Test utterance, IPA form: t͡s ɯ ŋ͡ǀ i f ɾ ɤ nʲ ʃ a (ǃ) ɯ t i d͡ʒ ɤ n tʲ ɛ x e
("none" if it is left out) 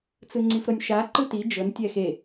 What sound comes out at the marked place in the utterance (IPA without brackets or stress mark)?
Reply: ǃ